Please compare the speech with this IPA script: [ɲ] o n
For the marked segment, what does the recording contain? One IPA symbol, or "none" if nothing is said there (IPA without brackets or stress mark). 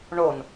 ɳ